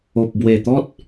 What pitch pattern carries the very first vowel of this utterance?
low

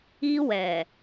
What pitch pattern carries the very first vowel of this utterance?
high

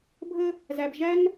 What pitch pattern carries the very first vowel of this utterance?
high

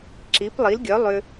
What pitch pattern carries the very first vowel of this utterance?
rising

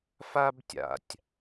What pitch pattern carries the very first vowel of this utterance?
high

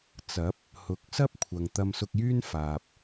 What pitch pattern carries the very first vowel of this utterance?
rising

